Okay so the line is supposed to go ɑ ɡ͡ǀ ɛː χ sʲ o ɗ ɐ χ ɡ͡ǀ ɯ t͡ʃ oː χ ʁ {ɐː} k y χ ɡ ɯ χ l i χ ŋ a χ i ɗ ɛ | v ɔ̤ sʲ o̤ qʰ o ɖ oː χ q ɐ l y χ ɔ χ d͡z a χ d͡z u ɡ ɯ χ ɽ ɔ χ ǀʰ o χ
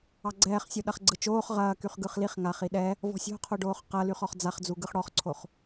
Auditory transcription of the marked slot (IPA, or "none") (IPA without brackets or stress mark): ɐː